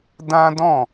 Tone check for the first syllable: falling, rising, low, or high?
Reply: high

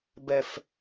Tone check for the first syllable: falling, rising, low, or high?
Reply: low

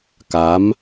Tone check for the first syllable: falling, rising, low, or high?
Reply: rising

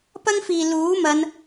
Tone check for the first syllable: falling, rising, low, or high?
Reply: high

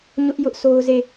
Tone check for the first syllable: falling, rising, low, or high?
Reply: high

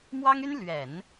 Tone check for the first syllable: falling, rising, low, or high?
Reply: high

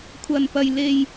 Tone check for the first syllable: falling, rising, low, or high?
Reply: low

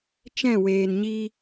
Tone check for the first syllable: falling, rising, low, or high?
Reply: falling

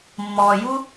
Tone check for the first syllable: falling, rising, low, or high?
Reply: low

